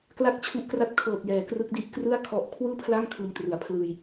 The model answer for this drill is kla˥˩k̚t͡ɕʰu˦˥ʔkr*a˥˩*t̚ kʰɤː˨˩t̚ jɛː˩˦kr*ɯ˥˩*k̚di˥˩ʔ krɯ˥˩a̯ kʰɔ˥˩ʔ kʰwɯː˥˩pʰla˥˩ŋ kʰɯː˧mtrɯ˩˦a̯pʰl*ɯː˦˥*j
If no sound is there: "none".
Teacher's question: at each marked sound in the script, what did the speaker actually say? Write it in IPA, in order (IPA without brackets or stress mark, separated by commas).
a˥˩, ɯ˦˥, ɯː˧